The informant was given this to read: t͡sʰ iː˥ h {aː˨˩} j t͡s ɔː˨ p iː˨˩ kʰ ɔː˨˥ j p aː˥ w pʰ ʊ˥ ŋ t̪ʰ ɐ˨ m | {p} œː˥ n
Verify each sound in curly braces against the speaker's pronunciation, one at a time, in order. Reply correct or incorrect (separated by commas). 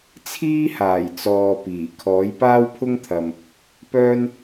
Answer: correct, correct